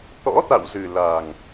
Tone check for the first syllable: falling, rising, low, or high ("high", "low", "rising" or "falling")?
rising